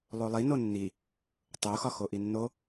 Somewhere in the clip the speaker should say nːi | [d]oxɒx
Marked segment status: incorrect: tˤ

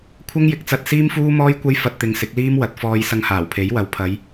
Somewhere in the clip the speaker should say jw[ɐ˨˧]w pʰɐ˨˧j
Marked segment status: correct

